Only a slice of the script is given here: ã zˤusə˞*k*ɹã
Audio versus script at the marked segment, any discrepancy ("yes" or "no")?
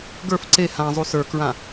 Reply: no